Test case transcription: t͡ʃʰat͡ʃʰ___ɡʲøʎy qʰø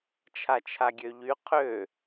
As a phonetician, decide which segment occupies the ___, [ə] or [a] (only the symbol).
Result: a